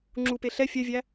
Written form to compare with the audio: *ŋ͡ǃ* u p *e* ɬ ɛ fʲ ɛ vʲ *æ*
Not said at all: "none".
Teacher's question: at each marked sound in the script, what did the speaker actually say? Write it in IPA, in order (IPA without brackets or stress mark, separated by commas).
ŋ͡ǁ, e, æ